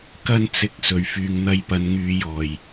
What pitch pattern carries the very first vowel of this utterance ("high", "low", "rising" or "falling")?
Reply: high